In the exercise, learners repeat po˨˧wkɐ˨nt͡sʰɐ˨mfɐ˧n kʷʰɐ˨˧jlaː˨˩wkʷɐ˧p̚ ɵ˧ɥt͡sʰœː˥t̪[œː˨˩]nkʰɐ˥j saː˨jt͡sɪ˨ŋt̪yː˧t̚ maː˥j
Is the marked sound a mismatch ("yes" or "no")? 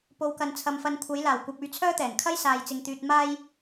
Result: yes